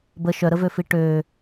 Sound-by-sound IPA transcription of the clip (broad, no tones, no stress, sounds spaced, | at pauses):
b ə ʃ œ ɾ ə v ø f i ʈ ø